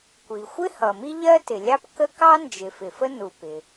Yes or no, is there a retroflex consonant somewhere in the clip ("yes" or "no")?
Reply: no